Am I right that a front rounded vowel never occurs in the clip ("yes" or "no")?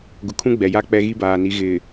yes